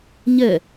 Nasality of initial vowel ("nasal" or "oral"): oral